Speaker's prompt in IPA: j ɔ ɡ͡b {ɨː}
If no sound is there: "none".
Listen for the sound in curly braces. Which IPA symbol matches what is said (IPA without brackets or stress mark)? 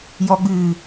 ɨː